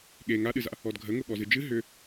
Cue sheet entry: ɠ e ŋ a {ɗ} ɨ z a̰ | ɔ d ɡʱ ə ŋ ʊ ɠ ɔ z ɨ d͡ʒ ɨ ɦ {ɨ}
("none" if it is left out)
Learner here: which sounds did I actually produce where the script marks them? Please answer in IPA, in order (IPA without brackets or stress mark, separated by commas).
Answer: ɗ, ʏ